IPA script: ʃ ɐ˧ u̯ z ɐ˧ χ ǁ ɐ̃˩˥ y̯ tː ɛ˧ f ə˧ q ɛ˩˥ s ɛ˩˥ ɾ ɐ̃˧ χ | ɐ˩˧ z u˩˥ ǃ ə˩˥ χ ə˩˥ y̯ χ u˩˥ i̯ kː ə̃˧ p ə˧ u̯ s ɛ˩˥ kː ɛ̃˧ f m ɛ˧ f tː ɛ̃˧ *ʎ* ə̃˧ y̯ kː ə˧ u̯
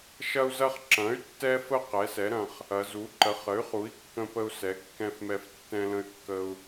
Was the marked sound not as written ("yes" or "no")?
yes